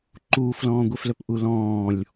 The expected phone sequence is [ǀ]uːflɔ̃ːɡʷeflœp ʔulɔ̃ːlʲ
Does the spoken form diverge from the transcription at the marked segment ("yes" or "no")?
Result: yes